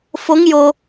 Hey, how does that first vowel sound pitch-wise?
rising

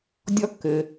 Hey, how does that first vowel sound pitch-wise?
high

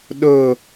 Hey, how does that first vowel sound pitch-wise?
falling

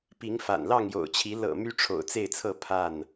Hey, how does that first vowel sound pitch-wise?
rising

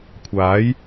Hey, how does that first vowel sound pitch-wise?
rising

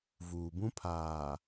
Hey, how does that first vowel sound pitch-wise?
low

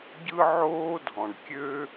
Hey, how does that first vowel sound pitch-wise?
high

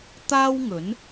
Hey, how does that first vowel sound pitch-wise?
high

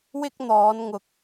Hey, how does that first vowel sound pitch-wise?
high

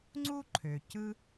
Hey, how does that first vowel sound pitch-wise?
high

